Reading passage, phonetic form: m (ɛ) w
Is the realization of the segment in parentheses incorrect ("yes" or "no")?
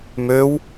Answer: yes